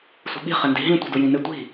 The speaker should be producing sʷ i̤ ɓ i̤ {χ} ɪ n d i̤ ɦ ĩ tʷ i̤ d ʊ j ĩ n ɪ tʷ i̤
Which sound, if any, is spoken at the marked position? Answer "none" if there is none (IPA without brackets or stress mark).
χ